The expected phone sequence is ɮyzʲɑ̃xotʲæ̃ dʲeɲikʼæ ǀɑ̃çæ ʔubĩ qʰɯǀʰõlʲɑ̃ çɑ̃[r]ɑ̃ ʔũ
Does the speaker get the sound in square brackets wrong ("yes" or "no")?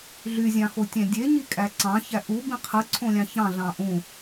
yes